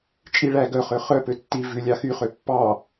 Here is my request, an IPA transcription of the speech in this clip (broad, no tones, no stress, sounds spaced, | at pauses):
t͡ʃʼ i ɭ æ ɡ œ χ ø χ œ p ø tː i v ʉ lʲ ɑ x y χ ø pː ɑ